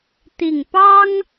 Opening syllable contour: low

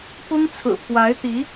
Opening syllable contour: high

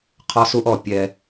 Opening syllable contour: high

